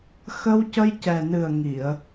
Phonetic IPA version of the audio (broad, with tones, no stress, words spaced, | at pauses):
xə˧wcə˧j cɛ˨˩nɨ˨˩ə̯ ŋi˨˩˨ə̯